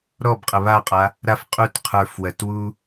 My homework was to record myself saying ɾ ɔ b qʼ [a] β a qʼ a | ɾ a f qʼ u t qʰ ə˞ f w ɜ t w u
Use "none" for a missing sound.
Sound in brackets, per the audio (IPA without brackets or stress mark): ə